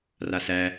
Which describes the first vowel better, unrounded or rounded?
unrounded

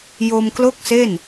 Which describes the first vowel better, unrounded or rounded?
rounded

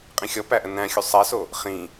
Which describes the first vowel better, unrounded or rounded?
unrounded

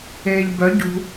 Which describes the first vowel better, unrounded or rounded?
unrounded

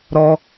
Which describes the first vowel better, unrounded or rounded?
rounded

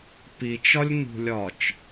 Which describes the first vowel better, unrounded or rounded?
unrounded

